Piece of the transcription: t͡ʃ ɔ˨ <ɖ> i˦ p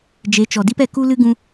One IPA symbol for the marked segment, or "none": d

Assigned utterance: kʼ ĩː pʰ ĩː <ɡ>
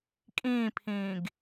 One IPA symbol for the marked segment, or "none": ɡ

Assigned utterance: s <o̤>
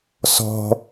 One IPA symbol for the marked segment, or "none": ɔ̤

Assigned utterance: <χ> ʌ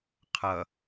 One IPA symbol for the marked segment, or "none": qʰ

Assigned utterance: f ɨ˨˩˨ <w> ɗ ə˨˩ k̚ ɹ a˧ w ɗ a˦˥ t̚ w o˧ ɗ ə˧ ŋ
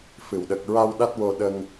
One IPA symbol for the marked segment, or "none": w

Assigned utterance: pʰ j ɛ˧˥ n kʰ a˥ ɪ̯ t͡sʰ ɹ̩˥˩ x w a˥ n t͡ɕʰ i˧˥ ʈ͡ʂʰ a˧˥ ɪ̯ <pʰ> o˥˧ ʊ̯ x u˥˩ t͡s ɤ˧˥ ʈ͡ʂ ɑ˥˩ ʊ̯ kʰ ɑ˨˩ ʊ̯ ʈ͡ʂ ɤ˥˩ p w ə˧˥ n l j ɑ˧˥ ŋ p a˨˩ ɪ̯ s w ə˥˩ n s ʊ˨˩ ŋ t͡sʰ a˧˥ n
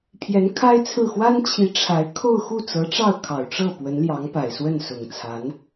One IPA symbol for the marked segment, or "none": kʰ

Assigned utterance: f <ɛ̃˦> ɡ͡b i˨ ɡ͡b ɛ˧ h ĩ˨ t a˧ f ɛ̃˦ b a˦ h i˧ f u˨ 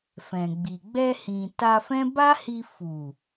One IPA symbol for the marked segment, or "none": ɛ̃˨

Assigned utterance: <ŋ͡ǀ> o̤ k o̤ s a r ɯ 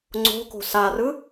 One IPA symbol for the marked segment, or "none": ŋ͡ǀ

